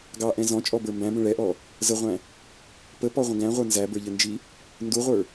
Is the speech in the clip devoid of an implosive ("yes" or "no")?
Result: yes